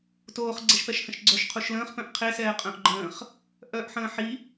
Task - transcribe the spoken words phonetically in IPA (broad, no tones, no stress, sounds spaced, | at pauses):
t oː χ ɡ͡ǀ ɛ ʃ p ɛ ʃ h ə̃ ʃ ɡ͡ǀ œ ʃ qʰ u ʃ l ə̃ː χ p œ̃ ʔ qʰ e s ɛː qʼ œ̃ ʔ ɡ͡ǃ ə̃ː χ | ʔ œː ʔ ħ ə̃ː ħ i